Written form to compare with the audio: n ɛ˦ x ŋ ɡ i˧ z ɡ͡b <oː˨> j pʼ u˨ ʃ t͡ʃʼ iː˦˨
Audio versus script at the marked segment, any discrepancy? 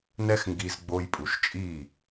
yes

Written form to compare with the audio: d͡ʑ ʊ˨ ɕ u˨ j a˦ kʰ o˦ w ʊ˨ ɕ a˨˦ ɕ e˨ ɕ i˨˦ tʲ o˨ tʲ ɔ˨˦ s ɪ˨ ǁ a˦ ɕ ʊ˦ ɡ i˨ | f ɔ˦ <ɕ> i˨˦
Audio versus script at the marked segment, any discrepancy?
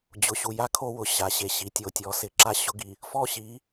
no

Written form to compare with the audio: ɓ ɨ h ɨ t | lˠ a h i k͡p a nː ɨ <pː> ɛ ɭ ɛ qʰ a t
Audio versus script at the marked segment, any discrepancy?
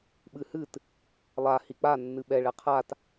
yes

